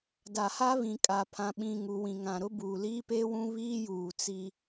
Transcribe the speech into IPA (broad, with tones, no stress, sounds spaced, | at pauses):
d a˨ h a˦ β ĩ˨ kʼ a˨ pʰ ã˨ ɓ ĩ˨ ŋ u˨ w ĩ˨ ŋ ã˨ ɾ ʊ˦ b uː˨ l iː˦ p eː˦ w ũ˦ β iː˦ j uː˨ t͡s i˦